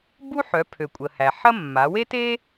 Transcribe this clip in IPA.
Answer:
b u˥ ħ œ˩˧ pʰ ø˩ kʷʼ ə˩ h æ˩ ħ ɐ˥ mː a˩˧ w e˥ t e˥

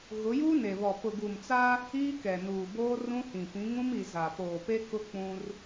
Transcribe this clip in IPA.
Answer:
ɣ ʊ˨˦ j uː˦ n e˨ β ɔ˨ p ʊ˨ ɡ u˨ m t͡s a˦ | iː˦ k ɛ˨ n uː˨ b oː˦ r ũ˦ h ĩ˨ p ĩ˨˦ ŋ ũ˦ m i˨ z a˨ p oː˨ p e˦ k ʊ˦ k͡p ũ˦ r

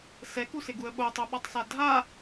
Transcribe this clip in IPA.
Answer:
s ɛ k u s ɪ ɡ u ə̯ ɓ o tˤ o ɓ ɔ tˤ s a dʱ a

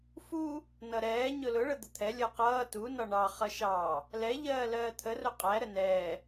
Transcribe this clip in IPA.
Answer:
f u | n ʌ ɾ ɛː ɲ ʊ l ʊ ɭ ə d̪ ə t̪ʰ ɛ lʲ ʌː q ʌː t u n ɒ ɳ ɑ χ ʌ ʃ ɑ | l ɛ ʎ ɜː l ɜː t̪ʰ ə r ʊ qʼ æ ɾ ə n ɛː

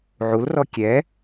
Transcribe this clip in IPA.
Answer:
ʕ u l r ɔ kʲ ɛ

